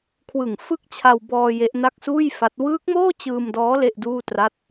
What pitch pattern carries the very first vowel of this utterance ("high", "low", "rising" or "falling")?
low